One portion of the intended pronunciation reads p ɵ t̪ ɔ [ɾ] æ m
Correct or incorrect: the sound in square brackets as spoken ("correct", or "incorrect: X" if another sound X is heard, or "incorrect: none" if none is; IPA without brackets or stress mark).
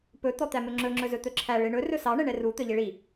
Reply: incorrect: t̪